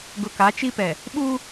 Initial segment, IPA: ɡ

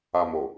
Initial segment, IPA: a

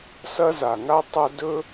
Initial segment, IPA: s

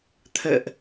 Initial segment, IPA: t̪ʰ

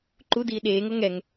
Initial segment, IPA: ǃ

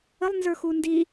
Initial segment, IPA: ə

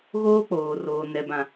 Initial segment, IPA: ɣ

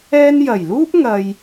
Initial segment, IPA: ɛː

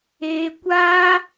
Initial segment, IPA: eː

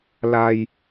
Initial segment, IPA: l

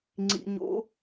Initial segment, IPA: ŋ͡ǀ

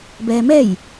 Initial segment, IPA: b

